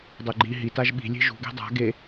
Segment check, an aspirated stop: absent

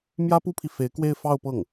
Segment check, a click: absent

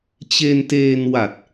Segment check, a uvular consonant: absent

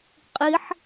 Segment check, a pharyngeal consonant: present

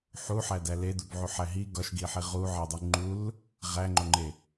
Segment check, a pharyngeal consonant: present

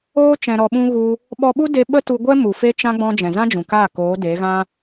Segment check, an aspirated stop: absent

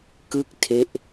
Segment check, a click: absent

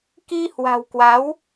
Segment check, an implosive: absent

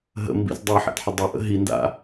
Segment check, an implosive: absent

